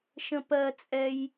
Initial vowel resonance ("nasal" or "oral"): nasal